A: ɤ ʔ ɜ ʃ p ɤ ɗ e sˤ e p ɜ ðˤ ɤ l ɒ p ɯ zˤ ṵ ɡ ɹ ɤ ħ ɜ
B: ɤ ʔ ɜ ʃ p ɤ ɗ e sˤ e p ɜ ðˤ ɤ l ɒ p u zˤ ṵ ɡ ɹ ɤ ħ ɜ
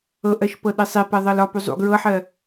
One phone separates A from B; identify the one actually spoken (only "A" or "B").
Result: B